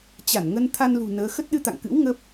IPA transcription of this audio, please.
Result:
t͡ɕ a˧˩ n ŋ ə˧ n t̪ʰ a˧ n l ṳ˨˩ n əː˨˦ x ə˦˥ t̚ ɗ ɨ˧ t̪ a̰˧˨ ŋ k ɨ̰˧˥ w ŋ ə˦˥ p̚

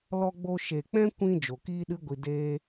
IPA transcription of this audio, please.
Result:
l ɔ˧ ɡ͡b o˧ ʃ e˨ k͡p ɛ̃˦ kʷ ĩ˧ d͡ʒ o˨ k iː˦ ɗ ɨ˦ ɡʷ i˧ d eː˦

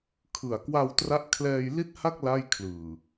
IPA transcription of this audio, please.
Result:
kʰ ɯ˨˩ a̯ k w a˧ w t r a˦˥ ʔ kʰ l ɛː˧ j l i˥˩ t̚ h a˥˩ k̚ l a˥˩ j kʰ l ɯː˨˩

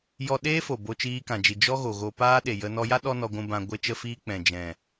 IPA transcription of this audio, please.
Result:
j ɔ˦ ɗ eː˦ f o˨ b o˧ t͡ʃ iː˧ k ã˨ d͡ʒ i˨ d͡ʒ ɔ˦ ɣ o˨ ɣ o˧ p aː˦ ɗ e˨ j ə˧ n ɔ˧ j a˦ ɗ ɔ˦ n ɔ˧ ɡʷ ũ˧ b ã˧ ɡʷ e˦ t͡ʃ ə˦ f iː˦ k͡p ɛ̃˨ d͡ʒ ɛ̃˨

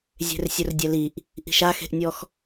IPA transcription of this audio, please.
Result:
zʲ e̤ r sʲ ʊ r dʲ ɛ l i ʔ | ʔ i̤ ʃ a x e̤ ʔ nʲ ɔ x

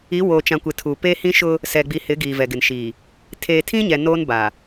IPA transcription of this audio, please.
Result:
i˨˦ w oː˨ t͡ʃ ã˨ kʷ ɪ˨ tʰ uː˨ p eː˦ h ĩ˦ ʃ ʊ˦ | s ɛ˨ ɡ͡b i˨ h ɪ˨˦ ɡ iː˨ v ɛ˨ ɡ ɪ˨ n ʃ iː˨ | tʰ eː˨ tʰ ĩ˦ ɲ ɛ˨ n oː˦ n b a˨

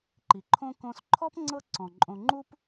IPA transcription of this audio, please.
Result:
ǃ i˩ ǃʰ õ˦ k õː˦ s ǃʰ ɔ˥ p ŋ͡ǀ ɤ˦ ǀ ɔ̃˩ ǃʼ õ˨ ŋ͡ǃ u˥ p

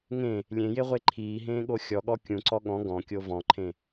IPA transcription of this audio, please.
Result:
ŋ ẽ | lʲ ẽ j e ʁʷ e ǃʰ iː ɦ ẽː ɠ o xʲ ɔ ɠ ɔ kʲ ũ ǀ ɔ ɠ ɔ̃ ɡ ɔ̃ kʲ o v ɔ̃ ǃʰ ẽ

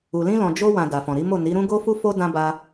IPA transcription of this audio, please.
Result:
u˨ l ĩ˧ l ɔ̃˨ d͡ʒ o˧ w ã˨ d a˨ f ɔ̃˨ ɾ i˨˦ m o˦˨ n i˨˦ ɾ ũ˦ ɡ o˦ f u˦ f o˦ d ã˦ b a˦

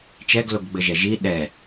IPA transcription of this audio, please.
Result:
t͡ʃ ɛ ɡ l o ɡ ɡ͡b ɘ ʒ ɛ ʒ i ɗ ɛ

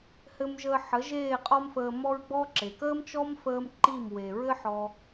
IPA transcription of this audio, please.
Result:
h ɘ˧ m ʒ əː˧ ħ ə˨˦ ʒ eː˦˨ qʼ ɔ˦ m f əː˧ m ɔ˧ ɹ ɡ͡b ɔ˦ ǁ e˨ k əː˦ m t͡ʃ ɔ˦ m f əː˧ m ǃ i˦˨ m w e˨ ɹ ɘ˦ ħ ɔ˧

